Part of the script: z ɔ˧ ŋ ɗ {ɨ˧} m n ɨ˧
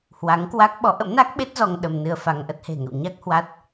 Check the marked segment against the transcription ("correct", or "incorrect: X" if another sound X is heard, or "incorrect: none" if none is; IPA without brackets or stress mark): incorrect: ə˧